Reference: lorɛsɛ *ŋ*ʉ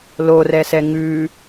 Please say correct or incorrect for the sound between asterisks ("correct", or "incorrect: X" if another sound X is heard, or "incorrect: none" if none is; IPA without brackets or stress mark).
correct